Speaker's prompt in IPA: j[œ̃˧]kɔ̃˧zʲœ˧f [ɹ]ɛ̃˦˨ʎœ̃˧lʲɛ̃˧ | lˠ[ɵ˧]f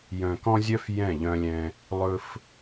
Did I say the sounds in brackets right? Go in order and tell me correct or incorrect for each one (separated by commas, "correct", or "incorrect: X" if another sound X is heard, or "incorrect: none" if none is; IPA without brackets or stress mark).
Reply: incorrect: œ̃˨, incorrect: j, correct